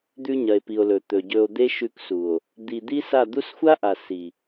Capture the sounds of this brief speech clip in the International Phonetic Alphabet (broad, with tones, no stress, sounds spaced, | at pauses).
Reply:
d̪ ʉ˧ ɲ ɐ˨ e̯ p i˨ o̯ l ɵ˨ t̪ ɵ˨ ɟ ɵ˧ o̯ d̪ e˦ ʃ ʉ˧ k s u˨ o̯ | d̪ i˧ d̪ i˦ s a˦˨ d̪ u˦ s xʷ a˦ ʔ a˨ s i˨